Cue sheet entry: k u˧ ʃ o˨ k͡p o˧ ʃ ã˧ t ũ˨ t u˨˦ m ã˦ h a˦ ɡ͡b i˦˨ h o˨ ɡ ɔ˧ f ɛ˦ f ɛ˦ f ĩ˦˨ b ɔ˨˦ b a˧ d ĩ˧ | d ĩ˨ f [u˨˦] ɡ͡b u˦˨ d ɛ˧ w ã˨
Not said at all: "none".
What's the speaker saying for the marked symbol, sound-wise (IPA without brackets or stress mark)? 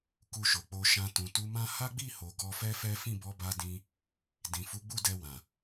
u˨˦